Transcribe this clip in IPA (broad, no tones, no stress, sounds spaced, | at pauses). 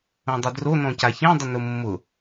õ dˤ ʏ d r o n ɔ̃ c a ç ẽ dˤ ʊ n ʊ mː ʊ